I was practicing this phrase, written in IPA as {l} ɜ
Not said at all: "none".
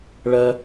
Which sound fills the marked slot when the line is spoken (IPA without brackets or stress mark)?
ɭ